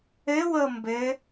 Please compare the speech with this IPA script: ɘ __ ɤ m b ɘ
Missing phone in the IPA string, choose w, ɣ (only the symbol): w